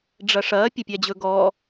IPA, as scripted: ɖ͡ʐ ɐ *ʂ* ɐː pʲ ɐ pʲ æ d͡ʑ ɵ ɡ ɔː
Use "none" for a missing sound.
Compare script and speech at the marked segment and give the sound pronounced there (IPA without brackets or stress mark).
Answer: ʂ